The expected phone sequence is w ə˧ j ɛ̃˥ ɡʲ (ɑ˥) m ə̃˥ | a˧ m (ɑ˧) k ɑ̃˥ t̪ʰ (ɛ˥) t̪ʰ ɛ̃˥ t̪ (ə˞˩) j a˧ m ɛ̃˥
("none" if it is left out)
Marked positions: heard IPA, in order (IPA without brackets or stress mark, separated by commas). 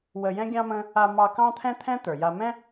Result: ɑ̃˥, ɑ˧, ɛ̃˥, ə˞˩